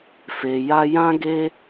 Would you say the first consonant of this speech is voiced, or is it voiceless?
voiceless